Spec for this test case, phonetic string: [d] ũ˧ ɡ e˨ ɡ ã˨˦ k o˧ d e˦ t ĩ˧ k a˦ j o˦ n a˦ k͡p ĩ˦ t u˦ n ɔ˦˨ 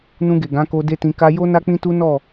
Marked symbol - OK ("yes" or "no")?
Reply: no